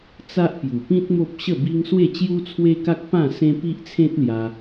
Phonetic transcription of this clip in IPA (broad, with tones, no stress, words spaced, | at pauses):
t͡sa˦ʔpju˨˩pĩ˦t̚ mo˦p̚ɕə˥˧bi˦ŋ swe˥˧t͡ɕju˦t͡sʰwe˦ka˦k̚ pã˥˧ sẽ˦ pi˦ʔt͡sʰẽ˦t̚lja˧